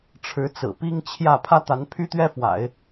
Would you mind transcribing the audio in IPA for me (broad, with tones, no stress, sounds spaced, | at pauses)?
ʈ͡ʂʰ ɻ̩˧˥ t͡s ɹ̩˨˩ p i˥ ŋ t͡ɕʰ j ä˥˩ pʰ ä˥ t̪ a˧˥ n pʰ y˥ t̪ ɥ ɛ˥ f w a̰˨˩˦ ɪ̯